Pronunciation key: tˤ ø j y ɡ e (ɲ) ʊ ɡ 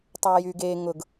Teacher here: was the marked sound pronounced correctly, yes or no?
no